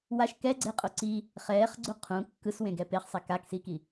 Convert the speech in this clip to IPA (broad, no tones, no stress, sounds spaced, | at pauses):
w a ʃ k ɛ ɡ͡ǀ e qʼ o ǀ i | χ ɛː χ ɡ͡ǀ u qʰ ũ kː ɯ s w ẽ ɡ ɛ p e χ sˤ ɛ k a k s iː k i